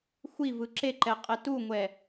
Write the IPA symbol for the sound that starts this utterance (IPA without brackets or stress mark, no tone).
xʷ